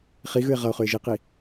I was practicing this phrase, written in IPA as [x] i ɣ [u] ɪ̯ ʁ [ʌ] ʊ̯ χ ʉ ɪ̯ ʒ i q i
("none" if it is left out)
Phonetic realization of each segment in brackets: χ, ʉ, ʌ

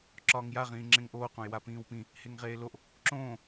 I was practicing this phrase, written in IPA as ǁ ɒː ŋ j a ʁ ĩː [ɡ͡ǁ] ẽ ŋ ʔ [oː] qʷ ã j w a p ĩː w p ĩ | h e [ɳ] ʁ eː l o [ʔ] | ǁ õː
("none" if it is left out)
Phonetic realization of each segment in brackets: ŋ͡ǁ, oː, ŋ, ʔ

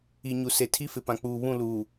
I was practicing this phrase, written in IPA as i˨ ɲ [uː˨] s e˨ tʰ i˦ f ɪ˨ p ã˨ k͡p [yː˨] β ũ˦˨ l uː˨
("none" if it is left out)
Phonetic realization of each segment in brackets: u˨, uː˨

